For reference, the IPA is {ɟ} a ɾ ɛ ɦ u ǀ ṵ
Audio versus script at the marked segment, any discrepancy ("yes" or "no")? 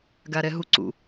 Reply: yes